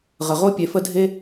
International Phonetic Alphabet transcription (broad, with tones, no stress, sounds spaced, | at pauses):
ʁ ə˩ ʁ o˦ pʲ e˨ f ə˦ dʱ e˦